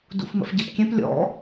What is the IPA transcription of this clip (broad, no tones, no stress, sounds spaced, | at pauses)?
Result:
d ṵ f m ə̰ f ɟ ɛ p kʲ ɛ̃ p lʲ ɔ̰